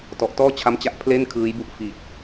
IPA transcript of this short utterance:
t ɔ˨˩ ʔ t ɔː˥˩ t͡ɕʰ a˦˥ m t͡ɕ a˦˥ ʔ pʰ l e˥˩ n kʰ ɯː˦˥ j b u˥˩ ʔ f i˨˩ t̚

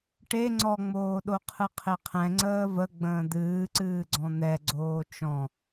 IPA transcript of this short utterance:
ʈ e ŋ͡ǀ ɔ ŋ͡m oː ɗ o qʰ ɨ qʰ e qʰ ɛ̃ ŋ͡ǀ əː v ə ɡ͡b ə̃ː d̪ ɨː ǀ ɨː ɡ͡ǀ ɔ̃ n̪ ɛ ɡ͡ǀ oː t͡ʃ ɔ̃

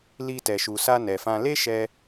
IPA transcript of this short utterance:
l i˧ t ɛ˨ ʃ u˨ s a˧ n ɛ˨ f ã˧ l e˦ ʃ ɛ˧

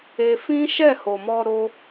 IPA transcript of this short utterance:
e˧ f ĩ˦ ʃ ɛ˦˨ h o˨ m ɔ˧ ɾ o˦

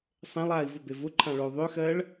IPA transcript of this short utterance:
sˤ ẽ lˠ aː i̯ v ʊ b e v ʊ ǃʰ ã ɭ o u̯ ðˤ ø x ɜː ɭ

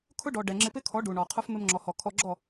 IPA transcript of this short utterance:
kʰ ʊ˦ ɖ ɔ˨ ɖ ɛ˨ ŋ͡ǁ ɪ˧ p ɪ˦ kʰ ɔ˨˦ ɖ u˨ ɳ ɔ˨ qʰ ʊ˦ f m ɪ˧ m ŋ͡ǁ ɔ˨ h ɔ˨ kʰ ɔ˦ ɡ͡ǁ ɔ˦˨

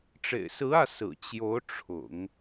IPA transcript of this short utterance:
ʈ͡ʂ ḛ˨˩ ɪ̯ s ɹ̩˧˥ ä˥˩ s ɹ̩˨˩ t͡ɕ j o˧˥ ʊ̯ ʈ͡ʂʰ ʊ̰˨˩˦ ŋ

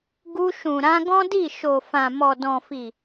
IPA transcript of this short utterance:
ɡ u˧ ʃ ũ˨ ɾ ã˧ ɡ ɔ̃˦ d i˦˨ ʃ o˨ f ã˨ m ɔ˨ d ɔ̃˨ f i˨

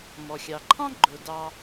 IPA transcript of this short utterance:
m ɔ˩ xʲ ɑ˩ ǃʰ ɑ̃˥ ɡ͡ǃ ʊ˩ d ɑ˨

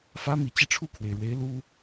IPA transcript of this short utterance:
f ä˥ m i˨˩ t͡ɕ i˥˧ ʈ͡ʂʰ u˥˩ kʰ w e˩ ɪ̯ ɻ w e˧˥ ɪ̯ l u˥

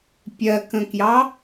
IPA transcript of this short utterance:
pʲ ɜ k ə̃ k j ɑ

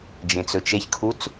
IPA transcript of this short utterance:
d͡ʒ ẽ t͡s ɵ t͡ʃ e ç kʰ u t͡s

